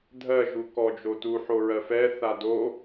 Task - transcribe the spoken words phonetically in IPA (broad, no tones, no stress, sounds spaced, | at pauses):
dʱ ɜ ʒ u k ɔ d͡ʒ o t u ħ o ɹ ɜ f ɛ θ a d o